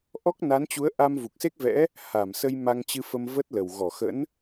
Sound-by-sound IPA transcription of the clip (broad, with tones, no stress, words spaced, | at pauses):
ʔɔ˦˥k̚ na˨˦nt͡ɕu˨˦ə̯ ʔa˧mvu˨˩k̚se˦˥k̚vɛ̰˧˥ | ha˧˩msə˧j ma˧ŋt͡ɕɨ˧fə˧m və˦˥t̚lə˨˩w ɣɔ˧˩xə̰˧˥n